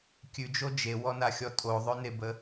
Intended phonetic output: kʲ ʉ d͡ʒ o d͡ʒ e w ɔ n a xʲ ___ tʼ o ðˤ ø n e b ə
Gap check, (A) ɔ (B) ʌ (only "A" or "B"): A